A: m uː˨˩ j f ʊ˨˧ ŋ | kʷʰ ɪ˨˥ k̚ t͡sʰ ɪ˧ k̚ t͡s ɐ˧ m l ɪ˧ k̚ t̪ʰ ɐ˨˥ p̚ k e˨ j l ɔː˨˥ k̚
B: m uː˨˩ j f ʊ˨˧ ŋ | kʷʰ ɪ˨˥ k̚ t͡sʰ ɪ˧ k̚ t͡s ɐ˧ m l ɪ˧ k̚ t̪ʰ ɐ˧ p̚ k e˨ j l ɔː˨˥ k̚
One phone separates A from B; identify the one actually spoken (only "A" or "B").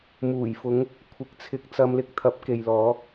A